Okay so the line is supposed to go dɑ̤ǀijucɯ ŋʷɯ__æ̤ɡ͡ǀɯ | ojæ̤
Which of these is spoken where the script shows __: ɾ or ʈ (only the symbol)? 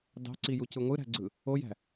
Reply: ɾ